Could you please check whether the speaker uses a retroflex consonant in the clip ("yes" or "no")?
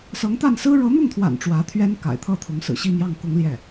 yes